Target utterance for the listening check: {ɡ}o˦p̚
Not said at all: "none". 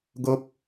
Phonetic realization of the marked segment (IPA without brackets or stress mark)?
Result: ɡ